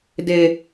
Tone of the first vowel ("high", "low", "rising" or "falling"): low